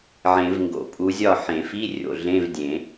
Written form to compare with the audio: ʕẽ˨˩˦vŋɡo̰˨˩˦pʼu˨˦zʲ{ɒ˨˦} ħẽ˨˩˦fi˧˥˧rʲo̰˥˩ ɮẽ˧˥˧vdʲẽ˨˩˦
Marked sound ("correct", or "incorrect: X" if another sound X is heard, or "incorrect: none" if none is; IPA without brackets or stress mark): incorrect: ɒ˥˩